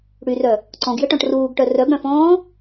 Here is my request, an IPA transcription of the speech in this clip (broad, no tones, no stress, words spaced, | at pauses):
ɽyrœ | ǀɔ̃ɡjɘʈɔ̃ʈ ruːɡʈœ rœɡɽœ̃fɔ̃ː